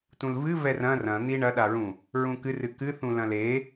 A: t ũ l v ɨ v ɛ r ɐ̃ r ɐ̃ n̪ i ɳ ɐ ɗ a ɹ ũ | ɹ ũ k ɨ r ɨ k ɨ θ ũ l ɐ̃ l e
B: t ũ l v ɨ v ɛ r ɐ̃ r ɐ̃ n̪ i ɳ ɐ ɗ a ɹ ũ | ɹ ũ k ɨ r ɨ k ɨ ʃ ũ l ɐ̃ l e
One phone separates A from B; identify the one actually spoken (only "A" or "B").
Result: A